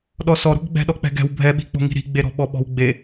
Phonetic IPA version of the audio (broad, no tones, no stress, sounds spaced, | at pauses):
ɗ ɔ s ɔ ɾ o̤ ɡ ɡ͡b ɛ̤ ɗ ɔ k͡p ɛ̤ ɡ ɛ̤ w bʱ ɛ ɓ i̤ k͡p o̤ ŋ i̤ ɾ i̤ ɡ͡b e ɾ ɔ̤ ɓ ɔ ɓ ɔ̤ w ɡ͡b e